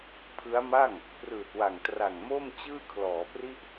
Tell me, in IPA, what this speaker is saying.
pʰ ɯ˦˥ a̯ m a˥˩ ŋ | p r ɯː˨˩ t̚ w a˨˩ ŋ t r a˨˩ ŋ m o˥˩ m t͡ɕ ɯː˥˩ kʰ l ɔː˩˦ p r i˥˩ ʔ

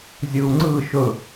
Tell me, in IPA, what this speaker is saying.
zʲ ɯ u̯ ŋ͡ǀ ɯ ʃ ɵ

